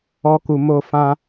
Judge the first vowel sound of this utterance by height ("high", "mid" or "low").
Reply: mid